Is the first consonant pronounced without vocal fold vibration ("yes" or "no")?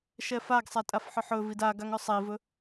yes